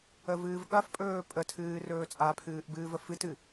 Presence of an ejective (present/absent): present